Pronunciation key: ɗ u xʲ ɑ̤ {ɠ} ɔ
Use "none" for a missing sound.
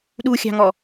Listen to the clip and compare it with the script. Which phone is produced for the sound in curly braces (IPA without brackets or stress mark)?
ŋ